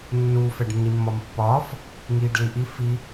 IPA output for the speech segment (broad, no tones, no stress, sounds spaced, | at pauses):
nː uː f ɛ ɖ nː i mː ɒ m pː ɒː f | ŋ iː ɖ l i ʔ i f i